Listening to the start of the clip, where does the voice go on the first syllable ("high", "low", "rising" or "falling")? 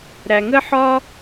low